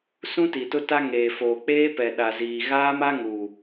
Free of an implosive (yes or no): no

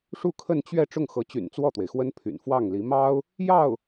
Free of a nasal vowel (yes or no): yes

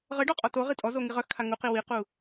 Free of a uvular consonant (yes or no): no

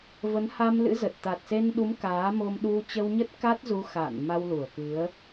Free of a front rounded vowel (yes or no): yes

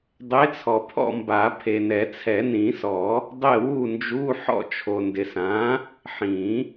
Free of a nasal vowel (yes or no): no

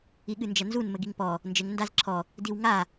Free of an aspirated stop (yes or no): no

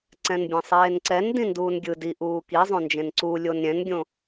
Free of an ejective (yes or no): yes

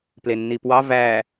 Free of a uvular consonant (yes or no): yes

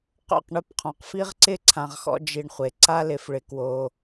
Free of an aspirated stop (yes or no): no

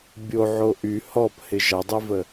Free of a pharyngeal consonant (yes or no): no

